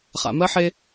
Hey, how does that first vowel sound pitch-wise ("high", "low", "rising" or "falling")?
low